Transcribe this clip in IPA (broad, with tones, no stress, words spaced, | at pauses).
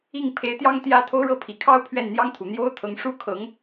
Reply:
i˥˩ŋpʰe˧˥ɪ̯t̪jɑ˥ŋ t̪jä˥ t̪ʰo˥ʊ̯ɻɤ˥pʰi˨˩ kʰɑ˥ʊ̯pʰɥɛ˥˩nn̪jɑ˥ŋt̪ʰu˨˩ n̪jo˥ʊ̯t̪ʰɤ˧˥ŋ ʂu˥˩kʰɤ˧˥ŋ